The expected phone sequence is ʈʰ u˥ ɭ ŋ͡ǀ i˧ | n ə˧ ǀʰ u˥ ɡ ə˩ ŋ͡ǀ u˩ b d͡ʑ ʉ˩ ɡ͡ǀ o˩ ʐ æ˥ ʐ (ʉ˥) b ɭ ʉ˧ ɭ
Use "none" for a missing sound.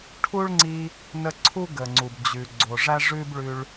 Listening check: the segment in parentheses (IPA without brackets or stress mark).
ʉ˥